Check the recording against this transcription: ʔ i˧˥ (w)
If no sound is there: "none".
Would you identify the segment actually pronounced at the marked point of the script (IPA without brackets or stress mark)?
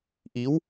w